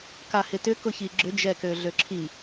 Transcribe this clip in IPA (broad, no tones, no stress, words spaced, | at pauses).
kahɪtʏ kʊçiɡ͡ǁʏ d͡ʒɛkøɮøǁʰi